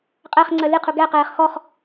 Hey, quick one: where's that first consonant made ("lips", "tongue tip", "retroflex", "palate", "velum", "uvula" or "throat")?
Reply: uvula